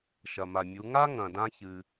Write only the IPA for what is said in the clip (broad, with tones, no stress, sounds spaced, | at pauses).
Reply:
ʃ ɐ˩ m a˩ mʲ u˩˧ ŋ a˥ ŋ ɐ̃˩ d ã˧ ç ɨ˩